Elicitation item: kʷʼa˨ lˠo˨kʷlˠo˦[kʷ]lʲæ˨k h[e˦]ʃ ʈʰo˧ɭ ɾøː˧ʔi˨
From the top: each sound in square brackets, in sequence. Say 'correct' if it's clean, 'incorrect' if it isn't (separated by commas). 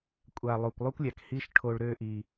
correct, incorrect